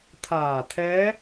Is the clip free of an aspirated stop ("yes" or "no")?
no